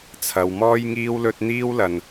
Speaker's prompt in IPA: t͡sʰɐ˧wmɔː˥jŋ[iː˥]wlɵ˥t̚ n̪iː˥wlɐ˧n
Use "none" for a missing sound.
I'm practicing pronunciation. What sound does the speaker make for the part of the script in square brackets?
iː˥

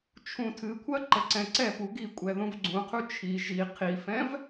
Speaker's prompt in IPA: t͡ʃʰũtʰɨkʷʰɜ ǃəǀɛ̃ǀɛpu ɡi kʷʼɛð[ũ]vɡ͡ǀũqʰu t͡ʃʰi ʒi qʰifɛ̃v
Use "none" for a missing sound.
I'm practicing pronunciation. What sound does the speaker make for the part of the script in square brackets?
ũ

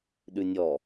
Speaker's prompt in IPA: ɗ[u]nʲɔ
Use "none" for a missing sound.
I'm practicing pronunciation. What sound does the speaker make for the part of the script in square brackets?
ʉ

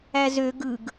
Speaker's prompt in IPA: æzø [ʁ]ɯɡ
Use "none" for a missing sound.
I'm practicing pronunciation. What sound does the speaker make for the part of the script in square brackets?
ɡ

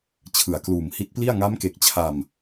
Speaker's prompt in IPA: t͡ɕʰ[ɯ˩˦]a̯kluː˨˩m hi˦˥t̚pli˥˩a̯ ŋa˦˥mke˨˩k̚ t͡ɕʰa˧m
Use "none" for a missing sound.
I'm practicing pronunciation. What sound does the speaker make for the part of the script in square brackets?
ɯ˨˩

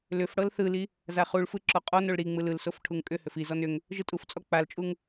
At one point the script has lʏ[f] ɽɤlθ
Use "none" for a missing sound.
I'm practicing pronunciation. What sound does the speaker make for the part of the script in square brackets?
f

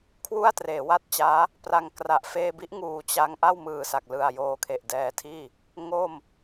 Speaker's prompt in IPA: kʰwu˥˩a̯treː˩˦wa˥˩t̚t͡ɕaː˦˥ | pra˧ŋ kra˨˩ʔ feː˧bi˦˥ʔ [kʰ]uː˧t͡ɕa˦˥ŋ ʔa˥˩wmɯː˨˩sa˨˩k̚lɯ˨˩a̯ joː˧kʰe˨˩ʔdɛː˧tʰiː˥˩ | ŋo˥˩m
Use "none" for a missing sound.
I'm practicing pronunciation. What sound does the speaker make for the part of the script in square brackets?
ŋ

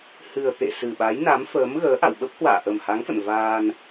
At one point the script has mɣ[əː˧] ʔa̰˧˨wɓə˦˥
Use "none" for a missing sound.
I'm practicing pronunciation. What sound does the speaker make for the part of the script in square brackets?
əː˨˦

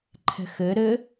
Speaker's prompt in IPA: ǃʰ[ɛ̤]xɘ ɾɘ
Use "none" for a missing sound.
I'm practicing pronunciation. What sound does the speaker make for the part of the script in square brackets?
ɛ̤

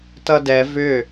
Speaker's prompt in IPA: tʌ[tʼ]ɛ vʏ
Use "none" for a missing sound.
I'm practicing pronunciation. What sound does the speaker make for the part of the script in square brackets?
d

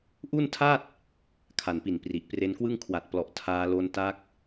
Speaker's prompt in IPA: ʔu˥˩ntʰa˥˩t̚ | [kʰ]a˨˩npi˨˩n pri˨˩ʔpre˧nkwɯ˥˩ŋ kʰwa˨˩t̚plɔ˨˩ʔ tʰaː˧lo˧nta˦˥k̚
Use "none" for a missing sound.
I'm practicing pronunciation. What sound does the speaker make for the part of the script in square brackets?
kʰ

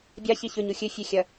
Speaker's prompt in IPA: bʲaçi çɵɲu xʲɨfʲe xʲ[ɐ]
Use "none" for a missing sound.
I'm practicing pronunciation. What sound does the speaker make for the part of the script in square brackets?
ɐ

